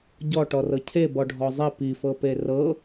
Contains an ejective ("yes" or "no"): no